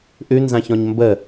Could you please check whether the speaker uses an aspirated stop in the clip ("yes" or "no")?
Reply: no